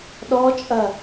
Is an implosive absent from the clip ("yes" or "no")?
no